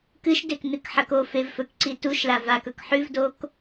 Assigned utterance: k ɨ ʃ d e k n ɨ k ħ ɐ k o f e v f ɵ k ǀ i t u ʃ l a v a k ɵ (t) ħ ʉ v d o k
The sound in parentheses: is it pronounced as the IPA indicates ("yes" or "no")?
no